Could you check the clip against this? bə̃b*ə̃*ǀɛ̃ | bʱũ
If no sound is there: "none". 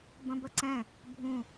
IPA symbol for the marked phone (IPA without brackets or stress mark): ə